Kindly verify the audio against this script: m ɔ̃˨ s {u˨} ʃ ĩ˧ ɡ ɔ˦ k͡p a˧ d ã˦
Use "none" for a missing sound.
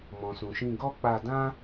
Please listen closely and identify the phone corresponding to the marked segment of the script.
ũ˨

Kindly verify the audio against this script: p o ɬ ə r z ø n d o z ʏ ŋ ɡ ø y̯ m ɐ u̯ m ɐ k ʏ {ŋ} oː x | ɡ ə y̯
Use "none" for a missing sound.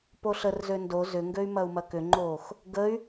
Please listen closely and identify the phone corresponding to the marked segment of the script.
ŋ͡ǃ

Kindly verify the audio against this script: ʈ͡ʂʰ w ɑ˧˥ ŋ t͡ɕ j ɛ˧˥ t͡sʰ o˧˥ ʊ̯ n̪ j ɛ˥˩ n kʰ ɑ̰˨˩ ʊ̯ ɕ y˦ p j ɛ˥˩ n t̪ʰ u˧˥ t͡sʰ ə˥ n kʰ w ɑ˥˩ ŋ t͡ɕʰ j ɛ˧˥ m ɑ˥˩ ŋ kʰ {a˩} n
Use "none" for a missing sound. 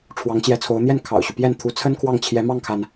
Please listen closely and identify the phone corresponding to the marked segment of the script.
a˩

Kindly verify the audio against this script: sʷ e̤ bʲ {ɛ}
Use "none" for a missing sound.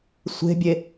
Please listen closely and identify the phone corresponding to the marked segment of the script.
e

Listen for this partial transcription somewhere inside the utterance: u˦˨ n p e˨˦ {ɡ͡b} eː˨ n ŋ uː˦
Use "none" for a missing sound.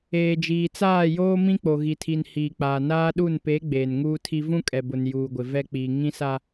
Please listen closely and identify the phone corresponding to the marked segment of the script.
ɡ͡b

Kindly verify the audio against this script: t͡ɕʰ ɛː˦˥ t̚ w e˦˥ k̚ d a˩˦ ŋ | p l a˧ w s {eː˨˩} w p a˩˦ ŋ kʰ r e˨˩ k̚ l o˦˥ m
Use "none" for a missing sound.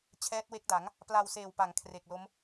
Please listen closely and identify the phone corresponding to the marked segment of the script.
eː˨˩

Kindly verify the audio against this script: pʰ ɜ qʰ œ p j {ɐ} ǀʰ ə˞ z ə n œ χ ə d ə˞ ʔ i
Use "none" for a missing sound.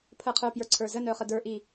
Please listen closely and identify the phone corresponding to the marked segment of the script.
ə˞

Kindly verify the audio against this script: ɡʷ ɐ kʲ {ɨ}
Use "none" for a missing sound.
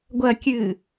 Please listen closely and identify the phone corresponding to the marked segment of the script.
ɨ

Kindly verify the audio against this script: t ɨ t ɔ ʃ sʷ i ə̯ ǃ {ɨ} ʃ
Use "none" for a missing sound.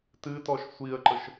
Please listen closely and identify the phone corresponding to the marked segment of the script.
ə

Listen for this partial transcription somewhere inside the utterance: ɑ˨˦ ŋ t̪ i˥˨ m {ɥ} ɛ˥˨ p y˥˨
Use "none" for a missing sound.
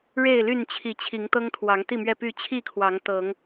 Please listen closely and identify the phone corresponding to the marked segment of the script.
ɥ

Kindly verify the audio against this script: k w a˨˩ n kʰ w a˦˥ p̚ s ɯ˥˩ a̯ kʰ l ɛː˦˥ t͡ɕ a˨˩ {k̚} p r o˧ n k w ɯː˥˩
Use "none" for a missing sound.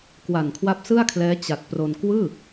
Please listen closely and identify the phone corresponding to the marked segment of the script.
t̚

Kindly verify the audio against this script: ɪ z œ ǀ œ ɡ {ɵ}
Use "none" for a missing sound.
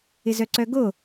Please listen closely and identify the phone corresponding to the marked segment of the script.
o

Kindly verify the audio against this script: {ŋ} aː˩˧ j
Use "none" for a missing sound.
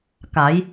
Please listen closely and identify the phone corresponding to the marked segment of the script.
k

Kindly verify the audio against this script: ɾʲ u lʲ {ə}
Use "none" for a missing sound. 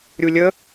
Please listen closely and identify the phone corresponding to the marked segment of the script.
ə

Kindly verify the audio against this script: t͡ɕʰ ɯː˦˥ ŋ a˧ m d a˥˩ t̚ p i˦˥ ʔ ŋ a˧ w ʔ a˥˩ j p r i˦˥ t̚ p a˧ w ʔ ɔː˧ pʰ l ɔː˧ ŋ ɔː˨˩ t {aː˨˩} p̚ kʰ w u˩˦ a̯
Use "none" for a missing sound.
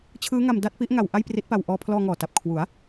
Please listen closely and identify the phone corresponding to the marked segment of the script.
a˨˩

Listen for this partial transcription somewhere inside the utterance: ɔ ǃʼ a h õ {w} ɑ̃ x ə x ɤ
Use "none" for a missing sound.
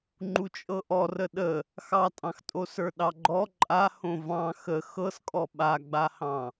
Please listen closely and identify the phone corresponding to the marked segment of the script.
v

